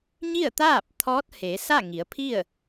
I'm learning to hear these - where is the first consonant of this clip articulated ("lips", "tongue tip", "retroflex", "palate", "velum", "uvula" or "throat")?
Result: palate